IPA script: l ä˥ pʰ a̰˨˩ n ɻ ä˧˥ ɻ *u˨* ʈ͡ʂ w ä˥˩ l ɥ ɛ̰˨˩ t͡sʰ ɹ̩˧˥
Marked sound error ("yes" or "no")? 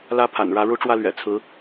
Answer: yes